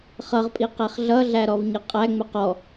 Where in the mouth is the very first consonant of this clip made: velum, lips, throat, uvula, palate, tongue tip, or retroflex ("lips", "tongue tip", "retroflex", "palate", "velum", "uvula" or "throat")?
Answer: uvula